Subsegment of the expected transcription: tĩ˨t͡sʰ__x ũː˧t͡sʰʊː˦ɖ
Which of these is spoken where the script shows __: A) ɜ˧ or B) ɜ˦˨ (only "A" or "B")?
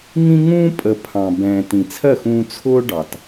B